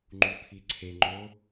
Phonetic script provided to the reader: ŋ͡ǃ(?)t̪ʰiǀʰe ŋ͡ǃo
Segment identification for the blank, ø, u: u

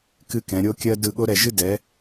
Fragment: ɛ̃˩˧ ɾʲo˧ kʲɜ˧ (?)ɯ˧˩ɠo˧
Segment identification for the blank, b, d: d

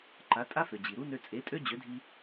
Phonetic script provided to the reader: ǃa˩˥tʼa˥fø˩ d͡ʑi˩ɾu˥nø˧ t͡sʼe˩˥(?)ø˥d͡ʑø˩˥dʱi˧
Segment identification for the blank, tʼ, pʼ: tʼ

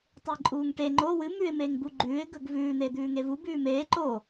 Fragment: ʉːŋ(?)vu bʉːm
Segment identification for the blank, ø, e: e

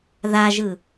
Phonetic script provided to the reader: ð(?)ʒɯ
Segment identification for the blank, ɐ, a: a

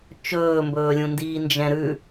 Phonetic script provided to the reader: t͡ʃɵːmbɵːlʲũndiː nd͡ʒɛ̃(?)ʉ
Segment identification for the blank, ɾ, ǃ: ɾ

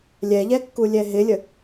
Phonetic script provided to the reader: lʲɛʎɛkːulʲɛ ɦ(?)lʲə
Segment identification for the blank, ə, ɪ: ɪ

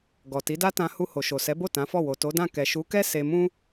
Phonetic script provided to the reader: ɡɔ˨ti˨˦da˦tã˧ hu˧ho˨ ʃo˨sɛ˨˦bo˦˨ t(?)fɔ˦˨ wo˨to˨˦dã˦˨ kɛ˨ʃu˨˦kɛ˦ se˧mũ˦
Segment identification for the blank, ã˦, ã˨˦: ã˨˦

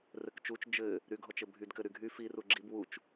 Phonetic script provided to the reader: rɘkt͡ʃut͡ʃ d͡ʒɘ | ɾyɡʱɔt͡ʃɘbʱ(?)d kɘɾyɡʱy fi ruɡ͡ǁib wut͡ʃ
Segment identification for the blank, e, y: y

